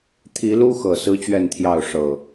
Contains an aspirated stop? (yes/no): yes